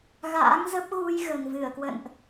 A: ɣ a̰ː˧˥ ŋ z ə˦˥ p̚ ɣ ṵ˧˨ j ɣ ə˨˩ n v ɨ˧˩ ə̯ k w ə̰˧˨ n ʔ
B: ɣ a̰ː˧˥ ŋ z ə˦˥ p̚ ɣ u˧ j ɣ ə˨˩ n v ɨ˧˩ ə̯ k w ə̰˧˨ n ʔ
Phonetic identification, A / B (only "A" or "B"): B